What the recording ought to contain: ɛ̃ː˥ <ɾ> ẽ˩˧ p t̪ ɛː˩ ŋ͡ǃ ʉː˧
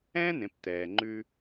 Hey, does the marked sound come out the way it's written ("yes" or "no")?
no